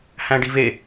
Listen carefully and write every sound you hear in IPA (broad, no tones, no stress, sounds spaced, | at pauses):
h æ̃ ɖ i v e